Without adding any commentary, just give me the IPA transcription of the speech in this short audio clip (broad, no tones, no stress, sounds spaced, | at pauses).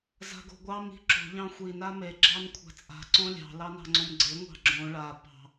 z a̤ ɡ o̤ ɡʷ ɑ m i̤ ǁ o̤ ʎ ɑ̃ xʷ i n a m e ɡ͡ǁ ɑ n kʷʰ a̤ t͡sʼ a̤ ǀ õ lʲ ɑ̤ l ɑ n ɑ̤ ŋ͡ǀ õ m ɡ͡ǀ e ŋʷ ɑ̤ ɡ͡ǁ õ ɭ a p ɑ̤